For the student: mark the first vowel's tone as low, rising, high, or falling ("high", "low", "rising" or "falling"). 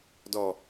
low